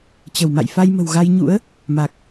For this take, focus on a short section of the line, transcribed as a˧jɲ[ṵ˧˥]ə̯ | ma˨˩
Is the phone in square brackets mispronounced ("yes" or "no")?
no